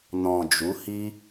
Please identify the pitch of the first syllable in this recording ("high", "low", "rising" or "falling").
low